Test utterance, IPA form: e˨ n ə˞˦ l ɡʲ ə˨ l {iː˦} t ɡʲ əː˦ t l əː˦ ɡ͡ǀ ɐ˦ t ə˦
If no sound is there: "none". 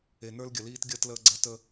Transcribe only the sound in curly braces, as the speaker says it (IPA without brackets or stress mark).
iː˦